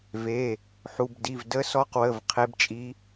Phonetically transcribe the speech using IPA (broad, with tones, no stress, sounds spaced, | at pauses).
v e˩˧˩ | ħ u˩˧˩ b d i˩˧˩ v d ə˧˥ s ɔ˧˥ q w ə˩˧˩ v qʰ e˧˥ b t͡ʃʼ i˧˥